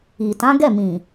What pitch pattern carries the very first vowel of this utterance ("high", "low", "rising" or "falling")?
low